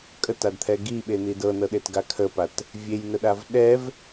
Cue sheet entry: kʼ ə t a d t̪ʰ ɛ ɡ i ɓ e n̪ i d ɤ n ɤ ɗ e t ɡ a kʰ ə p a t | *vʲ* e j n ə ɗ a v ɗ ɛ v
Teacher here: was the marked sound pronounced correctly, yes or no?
yes